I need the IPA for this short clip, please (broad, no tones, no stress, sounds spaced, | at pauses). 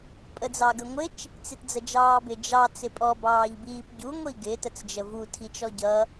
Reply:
pʼ ə d͡z ɑ ɡ ə ŋʷ ɪ t͡ʃ | t͡s ɪ t d͡z ə d͡ʒ ɑː b ɪ d͡ʒ ɑ t͡s ɪ pʼ ɔ b ɑː ʎ b iː p ɟ u ŋʷ i ɡ ɪ t ə t͡s d͡ʒ ə v u tʰ i t͡ʃ ɔ ɟ ʌ